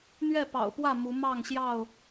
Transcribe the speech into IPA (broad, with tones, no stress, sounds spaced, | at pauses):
n̪ ɥ ɛ˥˨ p ɑ̰˨˩ ʊ̯ p w ä˥˨ m u˨˦ m ɑ˥˨ ŋ ɕ j ɑ˥˨ ʊ̯